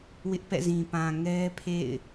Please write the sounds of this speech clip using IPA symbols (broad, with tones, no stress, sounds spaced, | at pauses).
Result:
w ɪ˦ ʔ p ɛ̰˦˨ z ĩ˨ p ã˨ ŋ ɛ˦ pʰ ḛ˦˨ ɪ̯